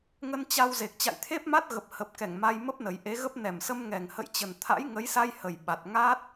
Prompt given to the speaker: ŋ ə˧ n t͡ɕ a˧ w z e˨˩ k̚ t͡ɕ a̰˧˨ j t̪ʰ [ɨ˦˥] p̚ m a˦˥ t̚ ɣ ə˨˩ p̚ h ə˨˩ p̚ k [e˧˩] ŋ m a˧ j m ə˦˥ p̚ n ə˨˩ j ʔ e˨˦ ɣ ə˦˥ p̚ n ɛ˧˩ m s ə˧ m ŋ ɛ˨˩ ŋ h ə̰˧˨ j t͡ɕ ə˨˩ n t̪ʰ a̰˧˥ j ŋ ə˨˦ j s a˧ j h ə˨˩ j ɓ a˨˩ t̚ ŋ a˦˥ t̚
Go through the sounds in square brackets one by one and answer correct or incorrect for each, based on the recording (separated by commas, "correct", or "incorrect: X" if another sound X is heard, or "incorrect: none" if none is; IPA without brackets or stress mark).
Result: incorrect: e˦˥, incorrect: ɛ˧˩